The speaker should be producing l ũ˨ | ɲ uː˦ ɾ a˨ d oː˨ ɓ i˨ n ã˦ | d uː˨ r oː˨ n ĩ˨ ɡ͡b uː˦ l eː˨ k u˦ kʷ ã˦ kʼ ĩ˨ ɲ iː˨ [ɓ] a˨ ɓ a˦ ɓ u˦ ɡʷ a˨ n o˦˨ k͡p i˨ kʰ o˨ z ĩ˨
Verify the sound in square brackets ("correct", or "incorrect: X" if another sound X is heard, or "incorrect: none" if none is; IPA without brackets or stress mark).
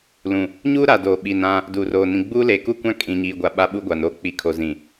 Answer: incorrect: ɡʷ